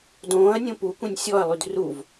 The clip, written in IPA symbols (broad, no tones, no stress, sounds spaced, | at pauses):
d õː ɐ̯ nʲ õ p u kʷ ẽ nʲ sʲ ɔ ɐ̯ lˠ y d r u v